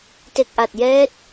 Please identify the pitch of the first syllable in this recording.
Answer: low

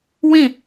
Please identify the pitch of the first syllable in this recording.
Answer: falling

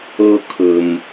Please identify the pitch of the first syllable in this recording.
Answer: high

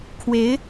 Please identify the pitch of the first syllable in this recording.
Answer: rising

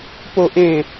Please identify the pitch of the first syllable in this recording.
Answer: high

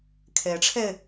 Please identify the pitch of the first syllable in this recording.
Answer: rising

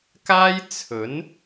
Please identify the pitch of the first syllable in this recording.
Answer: high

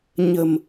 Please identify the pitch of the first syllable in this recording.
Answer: low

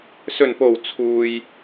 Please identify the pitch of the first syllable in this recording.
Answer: low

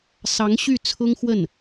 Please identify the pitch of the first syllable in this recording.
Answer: rising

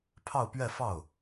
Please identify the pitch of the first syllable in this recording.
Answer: falling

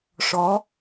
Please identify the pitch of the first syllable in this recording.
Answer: rising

